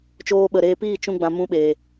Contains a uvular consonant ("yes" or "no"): no